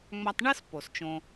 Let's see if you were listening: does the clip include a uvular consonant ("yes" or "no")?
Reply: no